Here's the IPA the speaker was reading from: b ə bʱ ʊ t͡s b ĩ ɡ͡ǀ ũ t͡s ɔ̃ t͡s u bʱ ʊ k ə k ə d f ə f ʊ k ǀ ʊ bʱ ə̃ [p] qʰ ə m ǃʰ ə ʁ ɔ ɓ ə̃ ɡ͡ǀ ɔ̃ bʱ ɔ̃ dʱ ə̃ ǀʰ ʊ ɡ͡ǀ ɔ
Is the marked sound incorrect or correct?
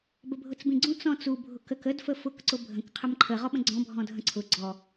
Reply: incorrect